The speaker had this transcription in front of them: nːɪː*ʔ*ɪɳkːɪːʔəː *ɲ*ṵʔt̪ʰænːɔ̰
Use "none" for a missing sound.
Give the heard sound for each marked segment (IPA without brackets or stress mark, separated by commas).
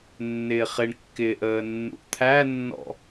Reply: χ, nː